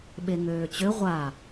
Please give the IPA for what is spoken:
ɓ e ŋ øː t͡ɕ ø ʁʷ a

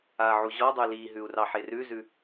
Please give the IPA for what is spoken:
a ʕ u ʑ ɔ dˤ ʉ l i ɦ ʉ u̯ r ɑ ħ e r ʉ z ʉ

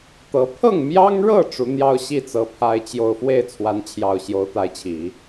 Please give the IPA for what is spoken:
t̪ ɤ˧˥ pʰ ɤ˥˩ ŋ m j ɑ˥ ŋ ɻ ɤ˥˩ ʈ͡ʂ u˧˥ n̪ j ɑ˥ ʊ̯ ɕ i˥˩ t͡s ɤ˧˥ pʰ a˥ ɪ̯ t͡ɕ j o˥˧ ʊ̯ f w e˥˩ ɪ̯ t͡sʰ w a˧˥ n t͡ɕʰ j ɑ˨˩ ʊ̯ ɕ j o˧˥ ʊ̯ t̪ a˧˥ ɪ̯ t͡ɕʰ i˨˩˦

